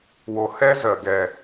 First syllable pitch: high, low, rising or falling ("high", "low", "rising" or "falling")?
low